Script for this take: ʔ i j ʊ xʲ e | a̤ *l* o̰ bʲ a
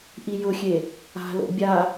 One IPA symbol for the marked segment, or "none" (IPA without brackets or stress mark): l